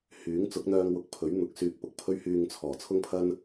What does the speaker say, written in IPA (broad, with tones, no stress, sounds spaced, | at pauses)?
h yː˨˥ ŋ t͡s ʊ˨˥ k̚ n̪ œː˧ ŋ w ʊ˨˥ k̚ pʰ ɵ˨˥ ɥ n̪ ʊ˨ k̚ s yː˨ k̚ p ʊ˨˥ k̚ pʰ ɵ˧ ɥ h yː˨ ŋ t͡sʰ ɔː˨˩ t͡sʰ ʊ˥ ŋ pʰ ɐ˥ n